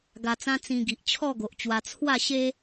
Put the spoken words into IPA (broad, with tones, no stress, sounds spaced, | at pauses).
ɡ a˧ t͡s ã˦ t͡s ĩ˧ ɡ i˨ ʔ t͡ɕʰ ɔ˥˧ ɡ o˨ ʔ t͡ɕ w a˧ t͡sʰ w a˥˧ ɕ e˦